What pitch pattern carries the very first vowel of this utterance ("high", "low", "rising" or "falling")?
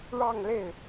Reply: falling